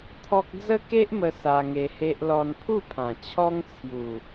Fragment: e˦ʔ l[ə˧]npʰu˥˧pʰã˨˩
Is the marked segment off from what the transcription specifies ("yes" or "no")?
yes